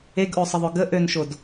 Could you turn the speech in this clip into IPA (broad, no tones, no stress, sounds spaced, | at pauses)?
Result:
e ɡ ʔ o sˤ ə ðˤ o ɡ ə ʔ ø n ʃ o d